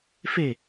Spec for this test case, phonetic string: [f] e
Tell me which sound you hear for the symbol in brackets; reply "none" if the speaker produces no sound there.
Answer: f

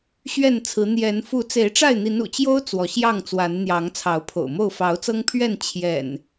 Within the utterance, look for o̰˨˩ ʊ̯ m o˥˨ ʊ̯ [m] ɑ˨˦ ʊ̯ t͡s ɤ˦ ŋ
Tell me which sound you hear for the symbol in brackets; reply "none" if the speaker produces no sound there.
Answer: f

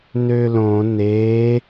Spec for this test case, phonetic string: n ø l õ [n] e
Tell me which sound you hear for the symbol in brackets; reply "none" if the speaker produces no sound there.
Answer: n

